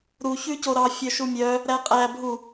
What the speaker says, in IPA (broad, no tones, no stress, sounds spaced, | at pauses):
ɾ u ç ʉ c o ɾ ɑ fʲ œ ʃ u mʲ œ | ɾ æ qʼ æ bʱ u